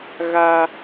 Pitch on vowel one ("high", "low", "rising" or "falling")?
high